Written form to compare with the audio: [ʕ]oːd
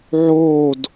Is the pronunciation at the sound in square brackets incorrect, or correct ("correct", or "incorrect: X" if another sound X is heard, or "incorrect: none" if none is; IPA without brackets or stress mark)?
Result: correct